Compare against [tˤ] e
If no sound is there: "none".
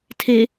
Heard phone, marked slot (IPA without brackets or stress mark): tʰ